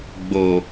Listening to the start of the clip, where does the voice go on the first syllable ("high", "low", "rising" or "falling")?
low